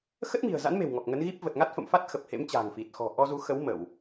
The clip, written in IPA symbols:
x ə˦˥ t̚ m i̤˨˩ ə̯ z a̰˧˥ n m e̤˨˩ w ŋ ɔ˨˩ k̚ ŋ ə˨˦ n ɣ i˦˥ p̚ v ə˨˩ t̚ ŋ a˦˥ t̚ f ə̰˧˨ m f a˦˥ t̚ x ə˨˩ p̚ h ḛ˧˥ m t͡ɕ a̤ː˨˩ ŋ f i˨˩ t̚ x ɔ̤˨˩ ʔ ɔ˧ z u˨˦ x ə˨˦ w m ə˧˩˨ w

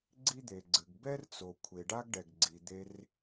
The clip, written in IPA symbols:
ɡ͡ǀ i˥ d̪ e˩ ɡ͡ǀ ɨ˩ ɡ b ɛ˥ r t͡s o˩ kʷʰ e˩ ɖ a˥ ɡ ɖ ɛ˩ ɡ ɡ͡ǀ i˩ d̪ e˧ r

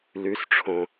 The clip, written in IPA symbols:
l ʉ s ʈ͡ʂʰ õ

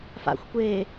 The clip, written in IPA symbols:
f a̰ xʷ kʷ eː

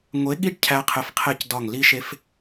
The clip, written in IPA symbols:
ŋʷ e˨˦ ɠ i˧ ɖ cʰ æ˦ qʰ e˧ f qʰ e˦˨ c d ɒ˦˨ ŋ l i˦ ʃ e˦ f

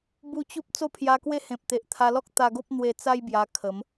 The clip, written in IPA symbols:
b u˧ t͡ɕ u˦ p̚ t͡s o˥˧ pʰ j a˧ k w e˦ h ẽ˨ p̚ t̪ e˨ ʔ t̪ʰ a˧ l ɔ˦ k̚ t̪ a˧ ɡ o˦ p̚ n̪ w e˧ t͡s a˦ j b j a˧ kʰ ə˨˦ m

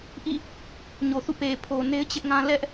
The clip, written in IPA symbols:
ʔ ḭ˦˨ | ɲ o˨ θ ṵ˦˨ p e˨ pʰ o˨ n e˦ ɪ̯ t͡ɕ ɪ˦ ʔ ŋ ã˦ l ɛ˦ ʔ

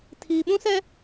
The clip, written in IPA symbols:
tʰ iː˨ ɓ ũ˦ s ɛ˦

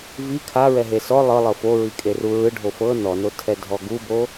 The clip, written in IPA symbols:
v i kʰ a ɹ ɛ ɦ e s ɔ lˠ ɤ lˠ ɤ f o ɹ i kʼ e r u ɹ ɯ ɖʱ o f ɤ n ɔ n o tʰ ɛ dʱ ɔ ɡ u b o

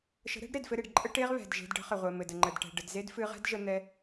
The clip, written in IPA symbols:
ʃ ə̤˨˦ ɾ ɛ̤˨˦ ɖ ɾ e˨ d f ɘ˧ ɾ e˨ ɖ ǃʼ ə˦ ʈ e˦ ʁ β ɛ̤˨ d ʒ e̤˧ d ɖ ə̤˨˦ χ ə˨ ʁʷ ɘ˨ m ɘ˨ d ə˨ ŋ͡ǃ ə˨ d ʈ ɛ̤˨ ɖ ə˨ d z e˦ d f ɨ˧ ʁ ɛ̤˦ d ʒ ə˦ n̪ ɛ˧

